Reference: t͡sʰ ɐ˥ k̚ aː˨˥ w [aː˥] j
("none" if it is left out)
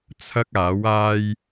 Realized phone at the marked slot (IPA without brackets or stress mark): aː˥